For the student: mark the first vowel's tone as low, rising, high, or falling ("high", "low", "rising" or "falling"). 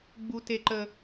high